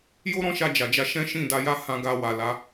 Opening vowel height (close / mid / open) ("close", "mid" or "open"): mid